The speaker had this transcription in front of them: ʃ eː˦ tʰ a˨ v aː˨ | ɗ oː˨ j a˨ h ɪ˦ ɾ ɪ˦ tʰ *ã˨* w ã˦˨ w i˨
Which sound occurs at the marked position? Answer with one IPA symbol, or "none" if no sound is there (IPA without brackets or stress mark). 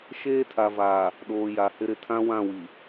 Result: ã˦